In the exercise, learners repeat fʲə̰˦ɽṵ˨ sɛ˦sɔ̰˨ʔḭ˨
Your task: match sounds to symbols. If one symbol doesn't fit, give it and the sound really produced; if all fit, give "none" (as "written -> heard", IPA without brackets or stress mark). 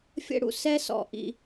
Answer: none